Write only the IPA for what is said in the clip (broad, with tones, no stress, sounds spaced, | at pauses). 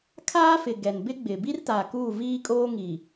kʰ aː˦ f ɪ˨ ɡ ɛ˨ n b ɪ˦ ɡ͡b ɪ˨ b i˦ r t a˨ k uː˦˨ v iː˦ kʼ oː˦ ŋ i˨